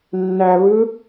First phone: nː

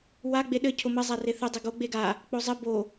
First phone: w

